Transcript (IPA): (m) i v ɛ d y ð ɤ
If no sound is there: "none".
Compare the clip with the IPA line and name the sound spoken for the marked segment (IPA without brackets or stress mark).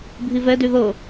bʱ